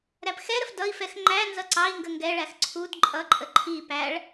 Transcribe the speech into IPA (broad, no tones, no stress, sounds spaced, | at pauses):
ɾ æ p x ɛ ɾ ə f d ʌ i̯ f ɛ x ŋ͡ǃ æ n z ʌ ǀ ɑ i̯ ŋ ɡ ə ŋ ɡ ɛ ɭ æ x ǀʰ u d ǃʼ ʌ ǃʼ ə ǃʰ i p æ ɭ